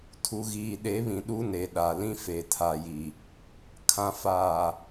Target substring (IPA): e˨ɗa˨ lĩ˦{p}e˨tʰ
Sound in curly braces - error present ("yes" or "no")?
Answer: yes